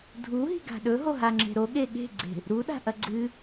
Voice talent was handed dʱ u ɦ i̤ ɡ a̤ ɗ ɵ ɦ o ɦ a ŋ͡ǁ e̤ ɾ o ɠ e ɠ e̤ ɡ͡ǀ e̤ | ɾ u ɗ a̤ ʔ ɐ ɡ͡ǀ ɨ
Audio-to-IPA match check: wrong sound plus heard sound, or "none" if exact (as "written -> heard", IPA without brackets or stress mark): none